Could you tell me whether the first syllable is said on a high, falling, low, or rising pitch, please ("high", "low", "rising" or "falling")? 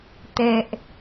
low